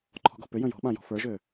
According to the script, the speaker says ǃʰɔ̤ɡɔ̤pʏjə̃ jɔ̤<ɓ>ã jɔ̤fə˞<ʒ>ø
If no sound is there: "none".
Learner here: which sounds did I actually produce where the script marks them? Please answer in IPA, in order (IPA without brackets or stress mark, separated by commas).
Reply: ɓ, ʒ